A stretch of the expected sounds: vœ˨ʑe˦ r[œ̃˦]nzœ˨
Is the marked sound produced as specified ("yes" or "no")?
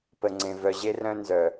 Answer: yes